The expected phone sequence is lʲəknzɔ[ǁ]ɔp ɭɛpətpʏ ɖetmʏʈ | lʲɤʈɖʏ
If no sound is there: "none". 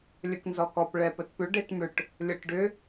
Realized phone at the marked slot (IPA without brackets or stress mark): k